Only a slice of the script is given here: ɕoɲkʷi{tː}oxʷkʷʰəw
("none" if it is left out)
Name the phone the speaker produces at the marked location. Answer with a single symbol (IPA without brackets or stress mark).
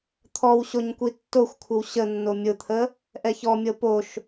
tː